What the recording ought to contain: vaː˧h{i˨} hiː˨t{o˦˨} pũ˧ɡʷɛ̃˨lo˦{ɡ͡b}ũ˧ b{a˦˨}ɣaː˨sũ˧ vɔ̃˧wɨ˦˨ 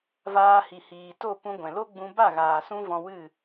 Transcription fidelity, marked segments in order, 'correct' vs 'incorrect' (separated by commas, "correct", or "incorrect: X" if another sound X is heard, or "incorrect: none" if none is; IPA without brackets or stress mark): correct, correct, correct, correct